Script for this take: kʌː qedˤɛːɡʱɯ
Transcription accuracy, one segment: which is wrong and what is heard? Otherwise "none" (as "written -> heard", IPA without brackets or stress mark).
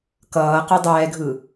none